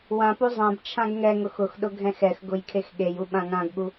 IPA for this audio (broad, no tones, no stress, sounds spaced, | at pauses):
w ã p u zˤ ã b t͡ʃʰ ã ɡ ŋ ɛ ŋ ʊ x ʊ x ɗ ʊ ɡʱ ɛ̃ x ɛ x ɡ ʊ j kʰ e x ɠ e j u ɓ ã ŋ ã ɡ ɠ u